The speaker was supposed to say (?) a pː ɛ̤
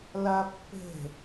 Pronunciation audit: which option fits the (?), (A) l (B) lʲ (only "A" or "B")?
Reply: A